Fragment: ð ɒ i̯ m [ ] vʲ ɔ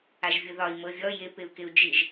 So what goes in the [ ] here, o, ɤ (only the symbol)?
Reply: ɤ